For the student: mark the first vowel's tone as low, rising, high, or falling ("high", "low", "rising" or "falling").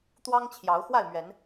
high